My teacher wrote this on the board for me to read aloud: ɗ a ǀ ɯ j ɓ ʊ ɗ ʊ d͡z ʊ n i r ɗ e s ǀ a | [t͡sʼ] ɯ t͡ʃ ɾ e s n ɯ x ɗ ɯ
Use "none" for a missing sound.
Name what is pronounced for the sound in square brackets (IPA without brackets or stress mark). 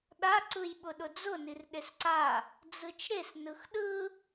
d͡z